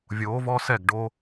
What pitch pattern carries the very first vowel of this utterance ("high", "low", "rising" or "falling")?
rising